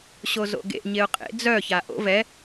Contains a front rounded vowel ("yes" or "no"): yes